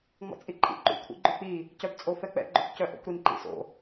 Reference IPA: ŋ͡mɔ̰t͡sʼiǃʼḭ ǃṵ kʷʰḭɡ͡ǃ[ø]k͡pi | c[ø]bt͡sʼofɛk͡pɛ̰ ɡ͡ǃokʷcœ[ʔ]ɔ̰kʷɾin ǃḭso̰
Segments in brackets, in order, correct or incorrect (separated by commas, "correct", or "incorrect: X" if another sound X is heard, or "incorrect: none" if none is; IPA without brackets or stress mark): correct, incorrect: œ, correct